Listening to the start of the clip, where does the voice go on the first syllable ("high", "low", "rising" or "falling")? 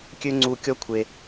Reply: high